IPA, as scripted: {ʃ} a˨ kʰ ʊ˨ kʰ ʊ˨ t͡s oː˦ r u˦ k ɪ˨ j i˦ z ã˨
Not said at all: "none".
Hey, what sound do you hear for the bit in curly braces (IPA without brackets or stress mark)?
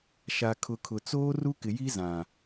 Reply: ʃ